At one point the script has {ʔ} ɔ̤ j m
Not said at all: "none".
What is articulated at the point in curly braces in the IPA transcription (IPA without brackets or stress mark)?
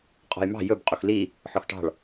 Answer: qʼ